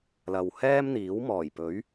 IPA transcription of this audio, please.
l ɐ˨ w h ɛː˥ m n̪ iː˨˥ w m ɔː˨˩ j p ɵ˨˥ ɥ

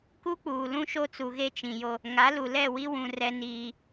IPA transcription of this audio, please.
k u˦ k͡p uː˨ l ũ˦ ʃ o˦ t͡s u˨ ɣ e˦ t͡ʃ ĩ˨ j o˦ | ŋ a˨˦ l u˨ l ɛ˦˨ w i˦ w ũ˨ r ɛ˦ n iː˦

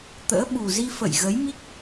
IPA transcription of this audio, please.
t̪ ə̰ː˧˥ ɓ u˨˩ z i˧ f ə̰˧˨ j ɣ ə˨˦ j m i˦˥ k̚

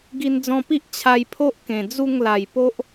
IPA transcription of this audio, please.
ɡ i˧ n d͡z ɔ̃˧ p i˦ ʔ t͡ɕʰ a˧ j pʰ o˦ ʔ k ẽ˨˩ d͡z u˥˧ ŋ l a˨˩ j p o˦ ʔ

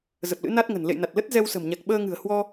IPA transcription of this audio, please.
z ə˨˩ p̚ l ɨ̰˧˥ n a˦˥ t̚ ŋ ə̤˨˩ n l ḛ˧˨ j n a˨˩ t̚ l ə˦˥ t̚ z ɛ˧ w s ə̤˨˩ m ɲ a˨˩ k̚ ɓ əː˧ ŋ ɨ̤˨˩ ə̯ h w ɔ˧

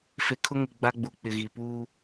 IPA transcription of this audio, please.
f e˨ kʰ ʊ˦ ŋ ɪ˨ ɡ͡b a˦ ɡ͡b u˨ k͡p ɪ˨ ɣ i˨ p uː˦

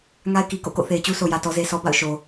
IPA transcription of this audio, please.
ŋ a˦ ɪ̯ k i˨ k o̰˦˨ k o̰˦˨ θ e˨ ɪ̯ t͡ɕ u˦ sʰ o˨ j ä˨ t ɔ˦ z e˦ s ɔ˦ b a̰˦˨ ʊ̯ ʃ o˨

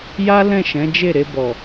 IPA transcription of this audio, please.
j a˦ l ɛ̃˦˨ ʃ ɛ̃˨˦ d͡ʒ e˦˨ ɾ e˧ b ɔ˨

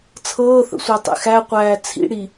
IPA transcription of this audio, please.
t͡sʰ ɤː θ ə̰ sʷ æ tˤ ḛ x æ qʷ æː t͡sʰ ḭ ɽ i

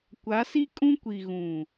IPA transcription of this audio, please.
kʷ a˨˦ s i˦ kʼ ũ˦ kʷ i˨ ɣ ũ˨

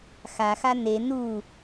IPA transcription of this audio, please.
x a x a n e n u

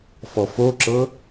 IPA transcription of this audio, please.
f ɔ f o ǁ ɤ

